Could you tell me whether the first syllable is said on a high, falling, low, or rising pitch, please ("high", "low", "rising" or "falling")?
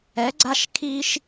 rising